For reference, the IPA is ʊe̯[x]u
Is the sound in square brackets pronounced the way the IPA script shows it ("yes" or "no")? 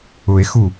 yes